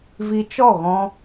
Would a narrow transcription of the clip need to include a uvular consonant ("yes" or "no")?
no